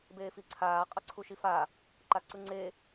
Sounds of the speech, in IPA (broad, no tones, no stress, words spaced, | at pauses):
beːfiǀʰaː qʼʌǀʰuʃifa | ǃaǀɯŋ͡ǀe